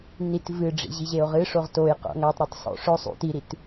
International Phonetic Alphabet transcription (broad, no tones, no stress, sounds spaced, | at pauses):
n i t v ɨ ɖ͡ʐ ḭ ʑ i ʑ e o̯ ʁ ɨ ʂ o ʁ t o j q o̰ ŋ a tˤ ɾ ɨ tˤ sˤ o̰ ʂ ɵ sˤ ṵ t i ɾ i t